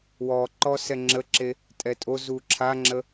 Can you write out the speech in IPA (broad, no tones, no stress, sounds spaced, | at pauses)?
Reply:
w ɔ ǃ ɔ s ɛ ŋ͡ǁ ə ǁ e | tʼ ɛ tʼ o z u ǁʰ a ŋ͡ǁ ə